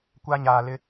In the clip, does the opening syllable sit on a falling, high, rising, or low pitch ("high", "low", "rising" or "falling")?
high